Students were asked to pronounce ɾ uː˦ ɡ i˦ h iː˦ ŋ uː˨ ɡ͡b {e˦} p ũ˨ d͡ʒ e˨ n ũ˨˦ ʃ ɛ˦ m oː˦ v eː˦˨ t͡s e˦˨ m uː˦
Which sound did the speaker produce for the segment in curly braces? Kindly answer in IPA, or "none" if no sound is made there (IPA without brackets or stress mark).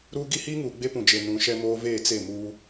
e˦